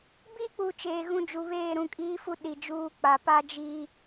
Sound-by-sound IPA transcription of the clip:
b i˦ k͡p u˨ t͡ʃ eː˨ ɣ ũ˦˨ d͡ʒ u˨ β eː˦˨ ɾ ũ˦˨ kʼ iː˦ f u˦ ɗ i˨ d͡ʒ uː˦ k͡p a˨ p a˦ d͡ʒ i˦

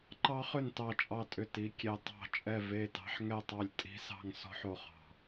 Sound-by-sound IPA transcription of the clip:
ǃ ɑ˦˥ χ ʏ˥˨ n t ɑ˥˨ t͡ʃʼ ɑ˥˨ tʼ ʏ˥˨ t i˦˥ kʲ e˦˥ tˤ ɑ̤˥˨ t͡ʃʼ ɛ˥˨ v e˥˨ t ɑ̤˦˥ ħ ŋ ɛ˥˨ tˤ ɑ˥˨ lʲ tʼ i̤˦˥ s ɑ̤˥˨ ŋ s ɔ̤˦˥ ħ o˥˨ χ ɑ̤˥˨

